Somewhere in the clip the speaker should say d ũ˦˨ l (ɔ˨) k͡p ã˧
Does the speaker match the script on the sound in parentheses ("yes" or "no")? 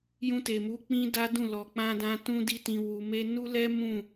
yes